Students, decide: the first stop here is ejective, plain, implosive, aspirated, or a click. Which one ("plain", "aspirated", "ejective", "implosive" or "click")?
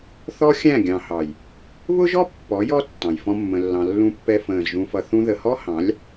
plain